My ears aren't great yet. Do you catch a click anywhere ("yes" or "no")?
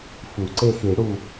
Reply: yes